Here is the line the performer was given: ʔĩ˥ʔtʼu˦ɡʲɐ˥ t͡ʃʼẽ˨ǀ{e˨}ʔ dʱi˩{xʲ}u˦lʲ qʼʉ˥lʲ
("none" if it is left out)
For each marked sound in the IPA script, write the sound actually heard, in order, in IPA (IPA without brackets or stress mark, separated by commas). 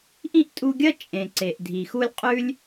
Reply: e˩, x